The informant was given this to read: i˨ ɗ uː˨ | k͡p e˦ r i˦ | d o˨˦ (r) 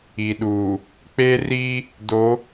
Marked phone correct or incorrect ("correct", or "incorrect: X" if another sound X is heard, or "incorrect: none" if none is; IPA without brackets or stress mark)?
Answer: incorrect: none